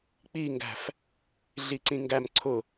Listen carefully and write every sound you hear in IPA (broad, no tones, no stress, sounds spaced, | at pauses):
k͡p i ŋ ɡ æ̤ f | ɮ i ǀ ĩ ŋ ɡ æ m ǀʰ ʊ